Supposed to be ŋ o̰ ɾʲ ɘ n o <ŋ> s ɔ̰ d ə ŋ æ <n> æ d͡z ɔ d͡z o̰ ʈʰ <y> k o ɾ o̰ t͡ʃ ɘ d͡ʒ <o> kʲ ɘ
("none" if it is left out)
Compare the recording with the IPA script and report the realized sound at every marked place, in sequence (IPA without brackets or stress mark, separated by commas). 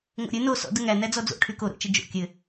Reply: none, n, y, o̰